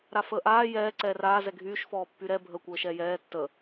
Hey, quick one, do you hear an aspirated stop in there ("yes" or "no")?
no